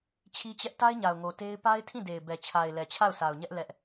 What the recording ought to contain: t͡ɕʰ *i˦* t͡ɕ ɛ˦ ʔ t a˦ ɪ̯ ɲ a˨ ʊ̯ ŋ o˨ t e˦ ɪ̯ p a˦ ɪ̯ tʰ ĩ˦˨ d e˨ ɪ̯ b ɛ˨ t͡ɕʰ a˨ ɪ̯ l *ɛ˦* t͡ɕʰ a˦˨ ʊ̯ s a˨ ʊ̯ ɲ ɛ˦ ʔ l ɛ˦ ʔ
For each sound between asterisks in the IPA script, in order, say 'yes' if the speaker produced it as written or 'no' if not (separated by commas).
yes, no